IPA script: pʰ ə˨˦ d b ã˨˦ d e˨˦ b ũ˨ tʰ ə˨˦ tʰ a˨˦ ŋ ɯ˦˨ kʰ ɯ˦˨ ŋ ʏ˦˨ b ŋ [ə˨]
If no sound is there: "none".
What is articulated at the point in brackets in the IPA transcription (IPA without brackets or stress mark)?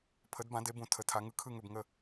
ə˦˨